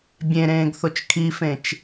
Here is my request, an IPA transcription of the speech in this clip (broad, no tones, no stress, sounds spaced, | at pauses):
bʲ ẽ ɾ ẽː ɡ θ o t͡ʃ kʰ i f ẽ t͡ʃ